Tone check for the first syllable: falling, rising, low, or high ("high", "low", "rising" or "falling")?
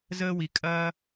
high